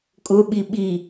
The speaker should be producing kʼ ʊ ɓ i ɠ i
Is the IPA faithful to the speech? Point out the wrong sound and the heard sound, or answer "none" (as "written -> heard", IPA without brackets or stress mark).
ɠ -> ɓ